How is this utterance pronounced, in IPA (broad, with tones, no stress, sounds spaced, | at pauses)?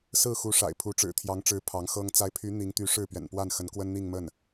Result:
s ɹ̩˥˩ x u˧˥ ʂ a̰˨˩ ɪ̯ pʰ u˧˥ ʈ͡ʂ ɻ̩˨˩ t̪ʰ j ɑ˧˥ ŋ ʈ͡ʂ ɻ̩˧˥ pʰ ɑ˧˥ ŋ x ɤ˥ ŋ t͡s a˧˥ ɪ̯ pʰ y˧˥ n̪ i˧˥ ŋ t̪ y˧˥ ʂ ɻ̩˥˩ p ɥ ɛ̰˨˩ n p w a˥˩ n x ə˧˥ n k w ə˥ n n̪ i˥˧ ŋ m ə˥˩ n